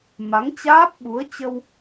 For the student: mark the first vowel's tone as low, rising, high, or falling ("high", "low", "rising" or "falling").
rising